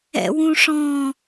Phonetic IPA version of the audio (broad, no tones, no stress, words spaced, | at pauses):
ɛ̰wũʂɔ̃